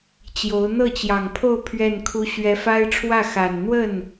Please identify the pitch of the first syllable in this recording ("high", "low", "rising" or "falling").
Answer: rising